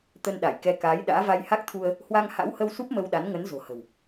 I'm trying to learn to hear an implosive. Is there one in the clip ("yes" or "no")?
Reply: yes